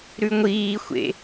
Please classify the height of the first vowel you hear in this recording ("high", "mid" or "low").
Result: high